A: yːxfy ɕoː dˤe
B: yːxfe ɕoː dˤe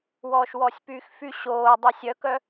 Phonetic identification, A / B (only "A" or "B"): A